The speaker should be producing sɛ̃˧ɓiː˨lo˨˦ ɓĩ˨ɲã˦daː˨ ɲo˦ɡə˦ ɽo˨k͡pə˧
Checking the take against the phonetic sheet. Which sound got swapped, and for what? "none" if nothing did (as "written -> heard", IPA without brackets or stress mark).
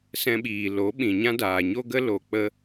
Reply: ɽ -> l